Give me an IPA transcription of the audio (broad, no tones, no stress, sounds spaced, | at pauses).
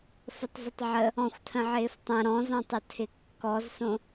f ə tˤ z ə tˤ ʕ ə | ɔ̃ xʷ tʰ ə̃ ʕ ɪː f tˤ ɐ̃ ɾ ɔ̃ z ɔ̃ tˤ ə tʰ ɪ kː ɔ z s õ